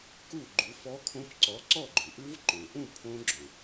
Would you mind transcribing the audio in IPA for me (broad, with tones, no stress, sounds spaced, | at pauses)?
k u˥˨ ɡ͡ǃ u˨˥ f ɔ˦˥ kʰ õ˦˥ p ǀ ɔ˨˥ ǀ ɔ˥˨ ɡ͡ǃ ʉ˩ ʔ ʉ˦˥ v ǃ õ˩ ʔ ũ˥˨ pʰ õ˦˥ ɡ͡ǁ õ˩